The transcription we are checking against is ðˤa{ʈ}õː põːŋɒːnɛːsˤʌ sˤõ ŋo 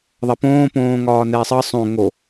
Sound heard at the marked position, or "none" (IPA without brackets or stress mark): p